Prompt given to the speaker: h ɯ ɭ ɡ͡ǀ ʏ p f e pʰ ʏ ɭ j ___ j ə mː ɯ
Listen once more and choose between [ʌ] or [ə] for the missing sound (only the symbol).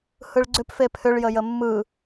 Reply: ə